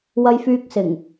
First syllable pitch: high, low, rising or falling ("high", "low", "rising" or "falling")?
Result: high